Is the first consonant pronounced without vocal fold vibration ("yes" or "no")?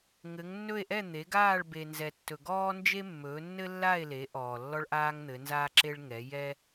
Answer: no